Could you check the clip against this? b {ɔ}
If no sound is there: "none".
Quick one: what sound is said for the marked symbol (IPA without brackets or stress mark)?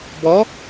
ɔ